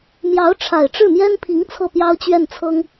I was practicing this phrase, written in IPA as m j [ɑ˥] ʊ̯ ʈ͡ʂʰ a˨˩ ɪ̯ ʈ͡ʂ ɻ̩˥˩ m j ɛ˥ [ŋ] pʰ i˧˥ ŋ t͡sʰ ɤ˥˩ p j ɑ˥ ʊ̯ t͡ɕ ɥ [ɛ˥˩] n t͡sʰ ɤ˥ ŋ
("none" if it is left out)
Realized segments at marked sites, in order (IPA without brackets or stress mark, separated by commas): ɑ˧˥, n, ɛ˥˩